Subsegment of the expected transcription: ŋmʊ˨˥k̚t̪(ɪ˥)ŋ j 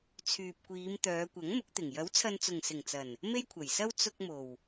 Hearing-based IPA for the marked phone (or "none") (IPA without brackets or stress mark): ɪ˨˩